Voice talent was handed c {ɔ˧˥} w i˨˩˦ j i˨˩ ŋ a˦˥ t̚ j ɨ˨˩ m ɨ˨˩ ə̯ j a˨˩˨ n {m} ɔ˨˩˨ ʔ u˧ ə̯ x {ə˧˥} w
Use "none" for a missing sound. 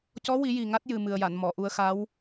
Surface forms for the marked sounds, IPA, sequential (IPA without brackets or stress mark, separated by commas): ɔ˧˥, m, a˧˥